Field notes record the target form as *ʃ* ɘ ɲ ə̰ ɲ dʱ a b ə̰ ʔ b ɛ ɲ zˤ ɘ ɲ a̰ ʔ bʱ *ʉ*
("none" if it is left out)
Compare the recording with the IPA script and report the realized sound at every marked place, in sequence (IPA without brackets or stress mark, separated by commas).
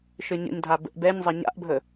ʃ, ə